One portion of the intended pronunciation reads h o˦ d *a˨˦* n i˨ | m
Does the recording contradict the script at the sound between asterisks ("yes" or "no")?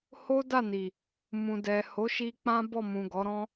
yes